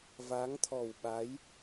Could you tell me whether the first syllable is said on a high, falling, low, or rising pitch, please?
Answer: rising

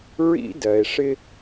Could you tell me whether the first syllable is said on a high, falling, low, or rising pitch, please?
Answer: high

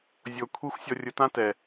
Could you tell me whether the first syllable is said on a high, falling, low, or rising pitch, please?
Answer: low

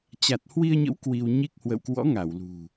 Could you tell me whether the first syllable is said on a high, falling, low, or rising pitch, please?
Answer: low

